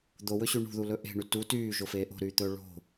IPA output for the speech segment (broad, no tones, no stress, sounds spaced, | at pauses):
d̪ o w ɵ ɕ y ɳ ṳ ð u l ɵ ʔ e̤ ɳ y t u t yː ʒ o f eː ʔ o̤ ɾ yː t̪ ɵː ɭ o̤